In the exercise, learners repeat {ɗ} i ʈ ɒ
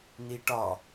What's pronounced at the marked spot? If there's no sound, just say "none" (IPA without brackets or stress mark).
n